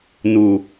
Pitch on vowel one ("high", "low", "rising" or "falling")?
low